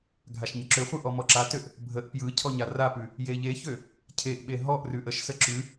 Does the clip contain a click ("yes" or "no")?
yes